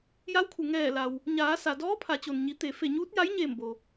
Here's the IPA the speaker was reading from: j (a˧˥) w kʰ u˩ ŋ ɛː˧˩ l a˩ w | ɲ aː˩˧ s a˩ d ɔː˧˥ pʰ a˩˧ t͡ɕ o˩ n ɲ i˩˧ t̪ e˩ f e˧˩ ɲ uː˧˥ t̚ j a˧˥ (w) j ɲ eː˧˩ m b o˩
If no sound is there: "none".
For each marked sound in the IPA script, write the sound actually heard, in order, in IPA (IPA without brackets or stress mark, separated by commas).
a˧˥, none